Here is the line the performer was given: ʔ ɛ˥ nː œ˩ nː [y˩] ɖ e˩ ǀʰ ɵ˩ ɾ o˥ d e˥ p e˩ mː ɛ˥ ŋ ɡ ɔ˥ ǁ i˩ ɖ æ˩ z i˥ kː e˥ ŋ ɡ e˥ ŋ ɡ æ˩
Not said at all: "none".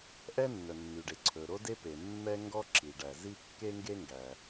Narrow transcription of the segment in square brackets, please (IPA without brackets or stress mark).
y˩